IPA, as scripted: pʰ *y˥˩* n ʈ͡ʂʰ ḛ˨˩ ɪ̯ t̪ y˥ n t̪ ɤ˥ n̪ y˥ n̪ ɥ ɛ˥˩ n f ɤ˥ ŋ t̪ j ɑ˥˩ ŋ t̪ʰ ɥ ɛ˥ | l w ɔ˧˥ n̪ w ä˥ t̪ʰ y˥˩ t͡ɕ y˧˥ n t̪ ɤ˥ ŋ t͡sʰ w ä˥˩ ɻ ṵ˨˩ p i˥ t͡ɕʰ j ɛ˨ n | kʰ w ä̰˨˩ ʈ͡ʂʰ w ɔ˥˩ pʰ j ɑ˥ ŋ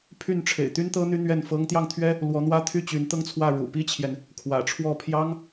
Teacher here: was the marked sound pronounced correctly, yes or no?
yes